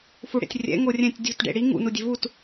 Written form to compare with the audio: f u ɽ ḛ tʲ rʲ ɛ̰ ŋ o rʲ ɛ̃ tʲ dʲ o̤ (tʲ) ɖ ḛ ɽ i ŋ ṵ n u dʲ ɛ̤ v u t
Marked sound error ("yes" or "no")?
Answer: yes